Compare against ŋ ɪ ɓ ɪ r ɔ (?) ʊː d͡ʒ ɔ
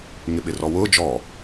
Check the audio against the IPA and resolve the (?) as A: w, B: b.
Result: A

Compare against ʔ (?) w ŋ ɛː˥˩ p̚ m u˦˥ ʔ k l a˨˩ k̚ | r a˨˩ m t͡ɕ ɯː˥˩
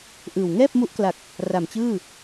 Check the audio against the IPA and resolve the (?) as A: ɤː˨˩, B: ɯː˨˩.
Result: B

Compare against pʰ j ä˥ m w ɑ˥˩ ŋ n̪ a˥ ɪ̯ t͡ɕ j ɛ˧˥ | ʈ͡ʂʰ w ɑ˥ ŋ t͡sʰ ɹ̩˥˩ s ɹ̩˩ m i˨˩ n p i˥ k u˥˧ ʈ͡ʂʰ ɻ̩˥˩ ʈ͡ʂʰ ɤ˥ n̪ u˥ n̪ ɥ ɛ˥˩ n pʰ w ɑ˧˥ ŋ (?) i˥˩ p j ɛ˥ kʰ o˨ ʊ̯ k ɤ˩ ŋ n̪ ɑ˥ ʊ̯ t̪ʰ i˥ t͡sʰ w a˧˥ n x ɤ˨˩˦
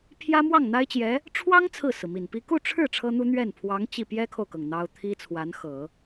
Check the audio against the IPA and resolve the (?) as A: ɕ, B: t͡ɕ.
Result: B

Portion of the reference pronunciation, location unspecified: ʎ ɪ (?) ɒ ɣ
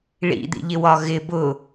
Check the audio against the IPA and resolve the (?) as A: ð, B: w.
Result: B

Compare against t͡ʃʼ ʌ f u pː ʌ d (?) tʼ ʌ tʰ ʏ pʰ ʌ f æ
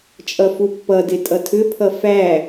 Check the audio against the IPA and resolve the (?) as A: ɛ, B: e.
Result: B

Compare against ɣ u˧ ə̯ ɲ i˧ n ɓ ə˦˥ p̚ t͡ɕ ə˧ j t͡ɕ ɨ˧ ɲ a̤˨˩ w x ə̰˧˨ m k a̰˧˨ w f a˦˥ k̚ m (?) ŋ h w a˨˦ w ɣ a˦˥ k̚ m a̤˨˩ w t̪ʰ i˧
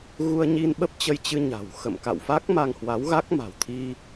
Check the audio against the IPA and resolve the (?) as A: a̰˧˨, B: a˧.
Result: B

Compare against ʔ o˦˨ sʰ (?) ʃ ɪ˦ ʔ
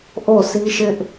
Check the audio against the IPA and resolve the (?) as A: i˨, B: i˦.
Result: B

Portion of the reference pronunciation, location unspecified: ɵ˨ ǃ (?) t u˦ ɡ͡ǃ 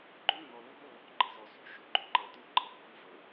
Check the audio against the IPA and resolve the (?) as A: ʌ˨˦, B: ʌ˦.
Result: A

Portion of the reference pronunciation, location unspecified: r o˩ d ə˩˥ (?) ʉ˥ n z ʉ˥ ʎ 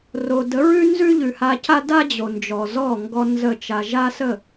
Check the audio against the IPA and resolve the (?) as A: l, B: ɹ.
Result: B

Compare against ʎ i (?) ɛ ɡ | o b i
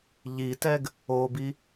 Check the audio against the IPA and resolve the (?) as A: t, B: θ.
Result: A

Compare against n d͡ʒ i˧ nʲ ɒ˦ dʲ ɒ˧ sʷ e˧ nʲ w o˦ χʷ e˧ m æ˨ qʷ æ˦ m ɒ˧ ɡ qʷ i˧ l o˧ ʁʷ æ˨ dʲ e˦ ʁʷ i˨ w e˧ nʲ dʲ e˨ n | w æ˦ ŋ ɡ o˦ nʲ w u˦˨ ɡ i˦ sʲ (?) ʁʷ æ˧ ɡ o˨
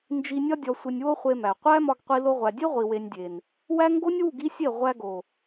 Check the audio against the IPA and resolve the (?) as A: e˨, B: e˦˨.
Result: B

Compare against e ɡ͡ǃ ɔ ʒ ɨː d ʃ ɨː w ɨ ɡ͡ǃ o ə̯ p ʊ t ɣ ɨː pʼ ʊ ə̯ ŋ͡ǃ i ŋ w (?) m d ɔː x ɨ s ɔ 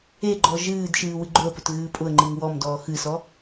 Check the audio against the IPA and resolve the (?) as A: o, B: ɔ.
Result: B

